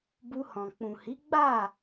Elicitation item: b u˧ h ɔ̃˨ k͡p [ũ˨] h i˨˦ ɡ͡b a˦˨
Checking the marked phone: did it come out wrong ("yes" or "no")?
no